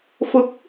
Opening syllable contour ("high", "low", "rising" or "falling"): rising